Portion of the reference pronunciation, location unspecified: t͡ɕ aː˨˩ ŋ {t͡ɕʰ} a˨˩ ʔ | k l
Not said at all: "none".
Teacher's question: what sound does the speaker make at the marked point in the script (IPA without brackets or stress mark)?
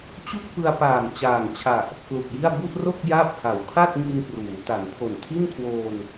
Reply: t͡ɕʰ